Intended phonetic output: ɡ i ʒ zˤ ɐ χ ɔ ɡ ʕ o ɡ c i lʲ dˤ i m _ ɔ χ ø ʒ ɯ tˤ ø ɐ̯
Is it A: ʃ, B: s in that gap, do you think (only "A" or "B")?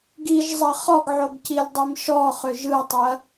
A